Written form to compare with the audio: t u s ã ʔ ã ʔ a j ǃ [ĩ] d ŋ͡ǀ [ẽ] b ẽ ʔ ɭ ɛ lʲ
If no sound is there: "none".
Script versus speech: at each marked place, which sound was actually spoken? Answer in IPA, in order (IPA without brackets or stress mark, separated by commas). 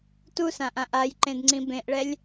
ẽ, ĩ